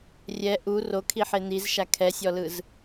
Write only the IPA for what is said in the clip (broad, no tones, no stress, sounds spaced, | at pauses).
rʲ ɛ ʔ u r o kʰ i ħ e n̪ i z ʃ a kʰ ɛ sʲ ɔ l ɯ z